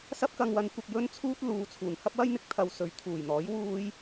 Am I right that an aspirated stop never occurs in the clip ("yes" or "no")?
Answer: no